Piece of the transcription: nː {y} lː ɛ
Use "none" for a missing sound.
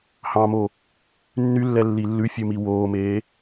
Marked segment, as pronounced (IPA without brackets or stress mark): y